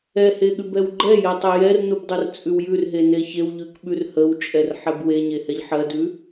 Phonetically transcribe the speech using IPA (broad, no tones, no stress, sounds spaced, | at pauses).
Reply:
ɛ h e ɠ ʉ b ɛ w ɡ͡ǃ ɛ j ɛ tˤ ɛ j ɛ r n u b dˤ ɜ r t͡sʼ ʉ w j ʉ r ɦ e n e ç e w ʎ ʉ k ɓ ʉ r h ə w t͡ʃʼ ɛ r ħ ɛ b w e ɲ e h ɛ ʎ ħ ɜ d ʉ